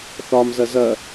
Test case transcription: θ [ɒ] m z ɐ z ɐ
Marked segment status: correct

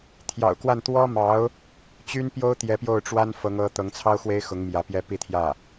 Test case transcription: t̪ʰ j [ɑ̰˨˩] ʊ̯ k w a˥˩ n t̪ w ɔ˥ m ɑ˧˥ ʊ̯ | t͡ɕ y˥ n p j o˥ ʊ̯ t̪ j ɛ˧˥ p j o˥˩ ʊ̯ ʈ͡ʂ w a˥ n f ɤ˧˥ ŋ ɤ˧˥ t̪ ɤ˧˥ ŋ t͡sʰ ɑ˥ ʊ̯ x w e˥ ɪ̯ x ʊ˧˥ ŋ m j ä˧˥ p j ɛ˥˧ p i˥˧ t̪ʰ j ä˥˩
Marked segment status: correct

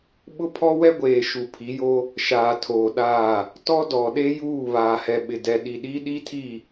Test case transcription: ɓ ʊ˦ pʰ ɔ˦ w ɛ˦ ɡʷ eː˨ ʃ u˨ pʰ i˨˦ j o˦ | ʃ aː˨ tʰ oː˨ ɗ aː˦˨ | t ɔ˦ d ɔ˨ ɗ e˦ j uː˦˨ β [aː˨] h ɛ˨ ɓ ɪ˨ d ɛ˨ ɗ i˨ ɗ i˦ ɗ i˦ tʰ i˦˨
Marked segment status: correct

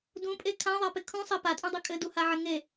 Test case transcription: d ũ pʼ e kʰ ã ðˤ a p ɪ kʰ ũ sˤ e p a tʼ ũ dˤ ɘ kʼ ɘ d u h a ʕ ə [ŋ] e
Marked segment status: correct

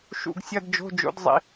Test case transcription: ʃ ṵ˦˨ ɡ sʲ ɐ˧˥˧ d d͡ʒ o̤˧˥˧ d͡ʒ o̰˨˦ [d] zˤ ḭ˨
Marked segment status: correct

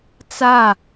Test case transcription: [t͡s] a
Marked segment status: correct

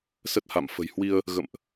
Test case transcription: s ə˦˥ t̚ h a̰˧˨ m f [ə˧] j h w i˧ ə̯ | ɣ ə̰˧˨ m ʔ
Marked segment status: incorrect: ə̤˨˩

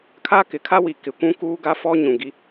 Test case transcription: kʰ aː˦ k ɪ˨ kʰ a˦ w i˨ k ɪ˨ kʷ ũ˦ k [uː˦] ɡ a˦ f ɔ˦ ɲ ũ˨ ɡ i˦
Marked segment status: correct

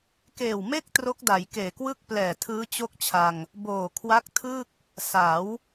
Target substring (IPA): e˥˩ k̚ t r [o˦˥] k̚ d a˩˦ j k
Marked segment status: correct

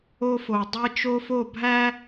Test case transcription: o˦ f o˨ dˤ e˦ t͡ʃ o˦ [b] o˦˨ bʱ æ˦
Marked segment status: incorrect: f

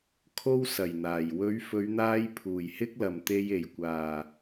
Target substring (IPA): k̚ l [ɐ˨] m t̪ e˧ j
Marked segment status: correct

